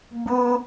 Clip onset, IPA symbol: ɡ͡b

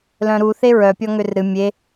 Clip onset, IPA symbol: l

